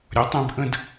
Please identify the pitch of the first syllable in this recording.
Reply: rising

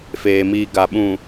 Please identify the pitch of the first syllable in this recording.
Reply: low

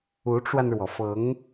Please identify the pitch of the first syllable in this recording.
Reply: rising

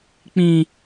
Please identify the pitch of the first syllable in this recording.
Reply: high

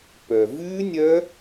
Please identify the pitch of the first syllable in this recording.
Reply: low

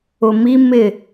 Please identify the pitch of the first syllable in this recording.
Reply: low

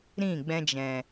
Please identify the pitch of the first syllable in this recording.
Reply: falling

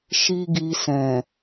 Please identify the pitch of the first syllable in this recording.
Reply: high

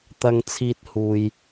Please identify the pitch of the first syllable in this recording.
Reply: low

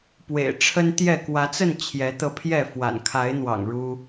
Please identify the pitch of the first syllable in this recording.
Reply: low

